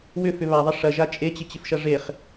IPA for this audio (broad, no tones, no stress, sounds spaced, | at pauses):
w ʏ f ʏ β a ðˤ ɐ ʂ ɐ ʒ a t͡ʃʼ e t͡ɕ ɪ t͡ɕ ɪ f ʃ ɐ ʐ e χ